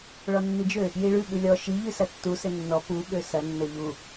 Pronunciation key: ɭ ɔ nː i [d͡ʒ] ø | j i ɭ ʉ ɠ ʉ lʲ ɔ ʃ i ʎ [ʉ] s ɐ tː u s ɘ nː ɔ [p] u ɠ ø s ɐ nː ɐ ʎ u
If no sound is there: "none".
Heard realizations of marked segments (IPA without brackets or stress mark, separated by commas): d͡ʒ, ʉ, p